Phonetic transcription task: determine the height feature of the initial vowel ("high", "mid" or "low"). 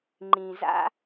high